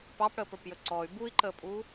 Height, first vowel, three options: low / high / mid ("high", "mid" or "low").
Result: low